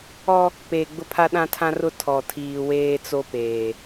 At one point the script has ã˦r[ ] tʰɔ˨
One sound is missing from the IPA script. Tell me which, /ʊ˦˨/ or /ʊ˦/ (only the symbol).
ʊ˦